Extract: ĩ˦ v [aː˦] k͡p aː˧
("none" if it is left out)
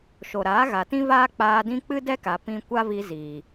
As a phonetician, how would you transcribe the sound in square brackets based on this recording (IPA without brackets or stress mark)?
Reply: aː˦